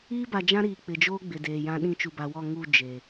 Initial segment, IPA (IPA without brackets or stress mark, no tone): iː